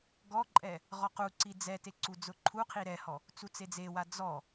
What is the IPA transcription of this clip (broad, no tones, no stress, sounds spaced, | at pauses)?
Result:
ɡ ɔ ǃʼ ɛ | ʁ ɔ q u ǀ i d͡z ɛ t e ǀ u d͡z ʊ ǃʰ u qʰ i ɾ ɛ h ɔ | t͡s u t͡s e d͡z e w a d͡z ɔ